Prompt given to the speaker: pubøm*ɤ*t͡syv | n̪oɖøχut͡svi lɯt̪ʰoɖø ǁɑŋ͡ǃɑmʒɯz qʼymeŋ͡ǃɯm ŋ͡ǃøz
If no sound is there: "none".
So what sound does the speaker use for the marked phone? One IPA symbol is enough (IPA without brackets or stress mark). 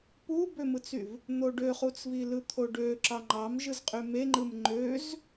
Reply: ɯ